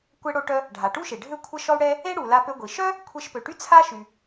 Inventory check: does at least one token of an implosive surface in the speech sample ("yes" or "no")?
no